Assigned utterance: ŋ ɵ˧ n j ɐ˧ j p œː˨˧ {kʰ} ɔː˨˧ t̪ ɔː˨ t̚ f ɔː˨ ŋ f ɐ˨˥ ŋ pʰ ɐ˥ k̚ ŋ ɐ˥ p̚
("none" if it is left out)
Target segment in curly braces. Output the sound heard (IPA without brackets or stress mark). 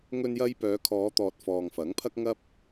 kʰ